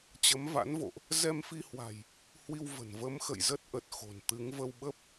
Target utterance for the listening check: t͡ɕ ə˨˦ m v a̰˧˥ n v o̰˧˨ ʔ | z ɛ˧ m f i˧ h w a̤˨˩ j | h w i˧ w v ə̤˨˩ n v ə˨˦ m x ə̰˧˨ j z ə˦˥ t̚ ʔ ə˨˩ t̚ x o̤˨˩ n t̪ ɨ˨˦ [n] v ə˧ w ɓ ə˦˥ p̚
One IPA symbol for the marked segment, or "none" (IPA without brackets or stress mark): ŋ